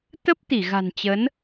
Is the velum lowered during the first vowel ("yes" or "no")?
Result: no